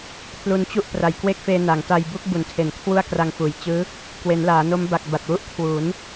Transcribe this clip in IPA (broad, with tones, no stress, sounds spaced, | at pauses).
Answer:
pʰ l u˧ n t͡ɕ u˥˩ ʔ p r a˨˩ j k w e˥˩ k̚ f eː˧ n a˩˦ ŋ t a˧ j b u˥˩ k̚ b u˨˩ n tʰ e˨˩ n kʰ w u˥˩ a̯ k r a˧ ŋ f uː˨˩ j t͡ɕ ɯː˦˥ | k w e˩˦ n l aː˩˦ n o˦˥ m b a˨˩ k̚ b a˨˩ t̚ w u˥˩ ʔ kʰ w uː˩˦ n